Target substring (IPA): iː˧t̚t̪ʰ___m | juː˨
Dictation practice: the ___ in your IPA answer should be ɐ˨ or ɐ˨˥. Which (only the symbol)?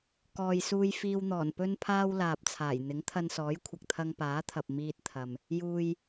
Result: ɐ˨